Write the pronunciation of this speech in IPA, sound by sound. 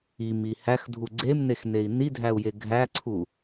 i m i h æ x dʱ u ɡ͡ǀ e m n e x n e i̯ n i dʱ æ u̯ j e ɡʱ æ ǀʰ u

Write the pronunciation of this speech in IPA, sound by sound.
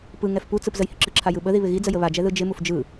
p ɯ ŋ ɛ f p u t͡s ɯ p z ə j h ɪ ǁ ɯ ǁʰ a j ɯ ɓ ə ð i β ɪ ɣ i d͡z ə j ə β a d͡ʒ ɛ ð ɯ d͡ʒ ɪ m u f d͡ʒ ɯ

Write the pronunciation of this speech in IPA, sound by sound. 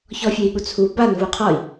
ç ɔ fʲ e i̯ ɠ u t͡sʰ u b a n v u qʰ ɔ i̯

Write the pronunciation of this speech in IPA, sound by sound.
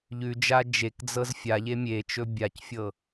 ʎ ʉ d͡ʒ a d͡ʒ e k d͡z ɤ z fʲ a ʎ e mʲ e t͡ʃ ɵ bʲ a c fʲ ɤ

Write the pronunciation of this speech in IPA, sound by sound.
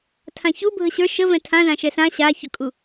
tʰ ã ç u bʱ ə ɕ ə˞ ʃ ə v ɛ̃ tʰ ã z ã ʃ ɛ s ã ɕ a ç ʊ kʼ u

